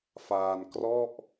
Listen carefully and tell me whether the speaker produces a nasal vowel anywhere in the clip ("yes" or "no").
no